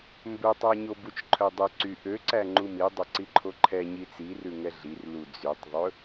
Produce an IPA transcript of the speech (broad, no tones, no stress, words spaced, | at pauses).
mbɵtˤæɲo but͡ʃǃʰœdˤɵ ǀy ʔøǀæ ŋ͡ǃumi dˤɵǀiǃʰoǃʰɛ ɲit͡sirʉ ŋɛɮir lud͡zytˤðˤɵ